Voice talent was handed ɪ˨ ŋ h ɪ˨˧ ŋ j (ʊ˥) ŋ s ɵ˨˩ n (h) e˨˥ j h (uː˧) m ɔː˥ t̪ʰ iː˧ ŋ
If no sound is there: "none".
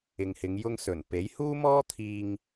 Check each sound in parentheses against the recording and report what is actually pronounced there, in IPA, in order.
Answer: ʊ˧, p, uː˥

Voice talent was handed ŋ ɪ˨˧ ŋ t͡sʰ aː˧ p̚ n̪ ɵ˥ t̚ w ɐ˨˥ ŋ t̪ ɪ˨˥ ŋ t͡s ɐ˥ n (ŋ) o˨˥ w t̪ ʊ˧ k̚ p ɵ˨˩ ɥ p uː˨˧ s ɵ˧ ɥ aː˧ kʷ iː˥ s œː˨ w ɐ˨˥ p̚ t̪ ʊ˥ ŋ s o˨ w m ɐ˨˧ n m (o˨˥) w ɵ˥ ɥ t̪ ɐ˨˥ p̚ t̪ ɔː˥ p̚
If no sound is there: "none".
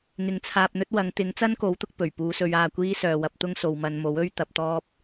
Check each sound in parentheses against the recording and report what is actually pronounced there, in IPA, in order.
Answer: k, o˨˥

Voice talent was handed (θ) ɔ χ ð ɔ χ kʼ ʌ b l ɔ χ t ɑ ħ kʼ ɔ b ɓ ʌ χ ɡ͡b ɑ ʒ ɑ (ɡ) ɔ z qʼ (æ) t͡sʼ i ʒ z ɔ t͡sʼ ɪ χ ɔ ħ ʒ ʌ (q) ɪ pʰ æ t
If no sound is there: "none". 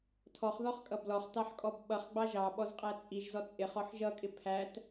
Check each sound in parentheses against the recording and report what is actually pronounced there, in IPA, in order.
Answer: tʰ, ɓ, æ, kʼ

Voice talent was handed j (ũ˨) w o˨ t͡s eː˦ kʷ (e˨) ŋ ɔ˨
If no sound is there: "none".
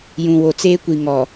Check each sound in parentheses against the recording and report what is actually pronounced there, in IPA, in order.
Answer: ũ˨, i˨

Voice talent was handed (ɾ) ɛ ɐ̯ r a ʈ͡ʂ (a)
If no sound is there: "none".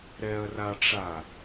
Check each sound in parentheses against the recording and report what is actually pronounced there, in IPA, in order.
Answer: ɾ, a

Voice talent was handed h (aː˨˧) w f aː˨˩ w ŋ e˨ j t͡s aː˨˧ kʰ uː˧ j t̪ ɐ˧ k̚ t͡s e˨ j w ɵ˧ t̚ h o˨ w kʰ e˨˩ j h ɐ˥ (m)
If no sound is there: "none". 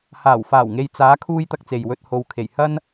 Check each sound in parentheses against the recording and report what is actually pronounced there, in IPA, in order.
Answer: aː˨˩, n

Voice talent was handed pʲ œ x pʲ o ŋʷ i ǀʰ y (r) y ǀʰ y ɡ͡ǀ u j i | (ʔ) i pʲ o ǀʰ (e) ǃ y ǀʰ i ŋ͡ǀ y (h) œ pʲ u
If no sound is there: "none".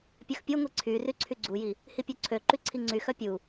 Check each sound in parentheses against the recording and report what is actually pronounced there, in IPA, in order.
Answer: r, h, ø, x

